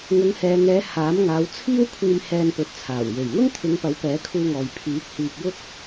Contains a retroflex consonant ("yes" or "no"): no